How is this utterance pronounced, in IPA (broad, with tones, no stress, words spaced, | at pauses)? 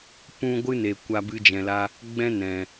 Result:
pũ˧ ɡʷɨ˦ne˨ kʷa˧ bɨ˧d͡ʒɛ̃˨la˧ | ɡ͡bɛ̃˦nɛ̃˨